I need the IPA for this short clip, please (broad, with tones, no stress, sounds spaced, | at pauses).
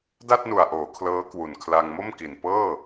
d a˥˩ t̚ n u˨˩ a̯ ʔ oː˩˦ kʰ l ɤː˦˥ k w u˨˩ n kʰ l a˧ ŋ m o˥˩ m k i˨˩ n p ɤː˥˩